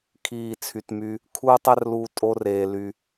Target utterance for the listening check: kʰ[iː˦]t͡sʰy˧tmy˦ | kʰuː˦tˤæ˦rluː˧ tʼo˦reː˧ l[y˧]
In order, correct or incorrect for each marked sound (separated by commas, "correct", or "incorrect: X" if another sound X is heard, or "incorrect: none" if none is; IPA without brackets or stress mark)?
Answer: incorrect: iː˦˨, correct